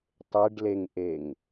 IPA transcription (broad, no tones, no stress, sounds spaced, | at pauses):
tˤ e ɖ l e ŋ ʔ e ŋ